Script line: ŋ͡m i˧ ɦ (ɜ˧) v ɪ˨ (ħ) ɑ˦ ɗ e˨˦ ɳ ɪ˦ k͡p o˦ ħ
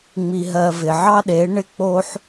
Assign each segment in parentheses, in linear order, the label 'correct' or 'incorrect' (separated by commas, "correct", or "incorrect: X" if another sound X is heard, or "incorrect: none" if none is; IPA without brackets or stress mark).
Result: correct, incorrect: ʕ